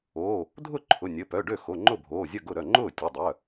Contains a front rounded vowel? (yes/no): yes